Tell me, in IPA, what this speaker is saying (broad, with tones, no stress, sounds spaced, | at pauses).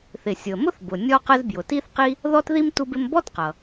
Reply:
θ ɪ˩ sʲ ʊ˩ ə̯ m ʊ˥ θ b ʊ˩ nʲ ɔ˥ q ə˥ z b j ʊ˩ t i˥ θ q i˥ | ð ɔ˥ t ð i˥ m t u˥ b ɪ˥ m b ɔ˥ t q ʌ˩